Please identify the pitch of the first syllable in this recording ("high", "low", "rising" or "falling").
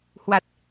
low